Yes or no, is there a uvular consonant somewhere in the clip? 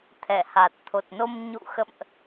no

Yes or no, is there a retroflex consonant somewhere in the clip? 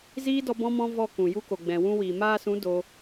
no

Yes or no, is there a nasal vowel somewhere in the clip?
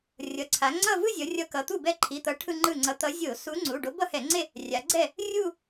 no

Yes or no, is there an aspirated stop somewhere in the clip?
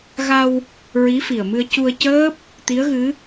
no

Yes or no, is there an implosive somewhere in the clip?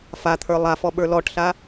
yes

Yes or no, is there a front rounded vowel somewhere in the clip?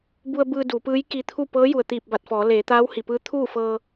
no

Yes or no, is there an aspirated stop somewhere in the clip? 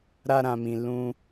no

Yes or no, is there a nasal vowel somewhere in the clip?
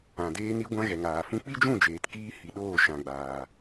yes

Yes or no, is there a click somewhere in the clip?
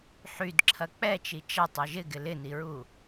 yes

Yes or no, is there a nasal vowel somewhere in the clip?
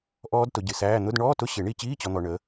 no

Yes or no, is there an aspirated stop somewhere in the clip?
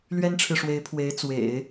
yes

